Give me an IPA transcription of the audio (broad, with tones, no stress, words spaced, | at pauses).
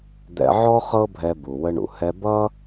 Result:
d̪ɛ̰˧ʕɔ˥ χɤ˥bʱɛ˧ bu˩wə˧ɳṵ˩hɛ˧ bʌ˥